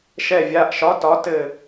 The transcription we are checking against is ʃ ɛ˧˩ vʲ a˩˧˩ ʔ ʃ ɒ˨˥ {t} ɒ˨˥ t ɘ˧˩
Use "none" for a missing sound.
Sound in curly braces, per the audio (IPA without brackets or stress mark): t